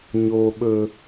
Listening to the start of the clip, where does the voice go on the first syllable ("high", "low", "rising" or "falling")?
high